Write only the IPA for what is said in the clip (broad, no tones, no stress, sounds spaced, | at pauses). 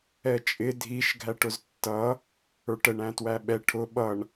ɛ t͡ʃʼ ɪ dʱ i ʃ ɡʱ æ ʈ ʊ z tː ʌ | ə˞ ʈ ə ɳ æ̃ t w æ ɓ ɛ ʈʰ ʊ ɓ ʌ ɳ